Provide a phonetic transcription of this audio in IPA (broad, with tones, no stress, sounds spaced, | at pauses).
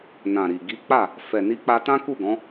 n ã˨ ɾ i˨ ɡ i˨˦ k͡p a˦˨ | f ɛ˨ n i˧ k͡p a˧ t ã˦ k u˦˨ ɡ ɔ̃˨˦